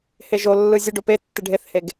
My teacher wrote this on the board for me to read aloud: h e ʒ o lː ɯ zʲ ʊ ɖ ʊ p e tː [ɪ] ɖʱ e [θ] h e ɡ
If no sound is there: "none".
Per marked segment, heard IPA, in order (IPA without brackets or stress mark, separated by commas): ɪ, θ